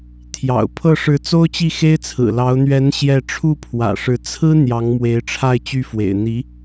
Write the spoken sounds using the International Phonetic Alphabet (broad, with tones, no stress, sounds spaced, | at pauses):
t̪ʰ j ɑ̰˨˩ ʊ̯ pʰ ɤ˥˩ ʂ ɻ̩˧˥ t͡s o˥ ʊ̯ t͡ɕ i˥˩ x e˥ ɪ̯ t͡sʰ ɹ̩˨˩ l ɑ˧˥ ʊ̯ n̪ ɥ ɛ˧˥ n ɕ j ɛ˥˧ ʈ͡ʂʰ u˥˩ pʰ w ä̰˨˩ ʂ ɻ̩˧˥ t͡sʰ ɹ̩˥ n̪ j ɑ˧˥ ŋ m w e˧˥ ɪ̯ ʈ͡ʂʰ a˥˧ ɪ̯ t͡ɕ y˥˩ f w ḛ˨˩ ɪ̯ n̪ i˧˥